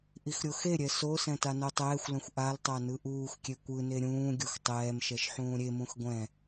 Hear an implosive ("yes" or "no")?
no